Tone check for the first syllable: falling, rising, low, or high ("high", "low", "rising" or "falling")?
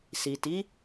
low